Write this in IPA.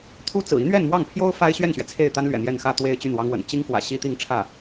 t̪ʰu˥ t͡sɹ̩˨˩ i˧˥n̪ɥɛ˥˧nmwɑ˥˩ŋpʰjo˥ʊ̯ fa˥ɪ̯ɕɥɛ˥˩nɕɥɛ˩ t͡sʰe˥˩ɪ̯t̪a˥n lɥɛ̰˨˩n̪jɛ˥˧n xä˥˧t̪we˥˧ɪ̯ t͡ɕy˥˩nwɑ˥ŋwə̰˨˩n t͡ɕi˥ŋfwä̰˨˩ ɕi˥t̪i˥˧ŋʈ͡ʂʰä˥˩

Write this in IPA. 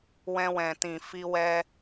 wɛ̃˧wɛ̃˨ tĩ˨fi˧wɛ˧

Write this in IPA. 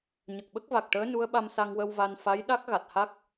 ɲə˨˩k̚ɓə˦˥k̚va˨˩k̚ʈəː˧˥ nu˧˥ə̯ɓa˧msa˧ŋwə˧w va˧n fa˧˥j ɗa˦˥k̚ɣa˨˩t̚ha˦˥k̚

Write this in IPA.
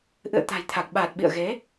ʔɨ̰˧˨ə̯t̪a̤˨˩jt̪ʰa˨˩k̚ɓaː˨˩t̚ ɓḭ˧˨ə̯ɣe˨˦

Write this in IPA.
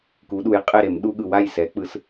ku˩˧ɗu˩˧j qʼe˥˩ɾe˧˩˧m ɗu˦ɠɯ˨˩ wa˥˩jsɛ˩˥ k͡pɯ˩˥s

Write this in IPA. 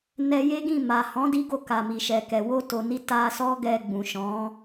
nɛ˧je˦ɡĩ˦˨ ma˨hɔ̃˨˦ di˧ɡo˧ ka˨mi˨ʃɛ˨kɛ˨ wo˧to˨ni˧ ta˧sɔ˦ ɡɛ˧ ɡ͡bũ˨ʃɔ̃˨˦

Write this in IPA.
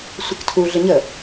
sʷɘktʰu ɮɘɲə

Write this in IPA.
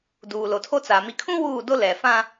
duː˨lo˨tʰo˦t͡sa˨ mi˨kʰũ˦ wuː˦˨do˦ lɛ˨fã˦

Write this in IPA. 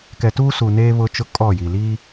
kɛ˨tuː˦ su˨neː˦ βʊ˦t͡ʃʊ˦ kʼɔ˦˨ji˨ liː˦

